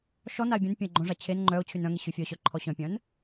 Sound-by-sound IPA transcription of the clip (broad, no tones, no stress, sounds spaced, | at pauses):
ʃ ɔ n a ɪ̯ bʲ œ̃ n pʲ œ̃ ɪ̯ ɡ͡ǃ õ ʐ a t͡ɕʰ e n ŋ͡ǃ œ ʊ̯ t͡ɕʰ y n œ̃ ŋ e ɕ y fʲ œ ɕ œ ǃʰ ɔ ɕ œ̃ pʲ œ̃ n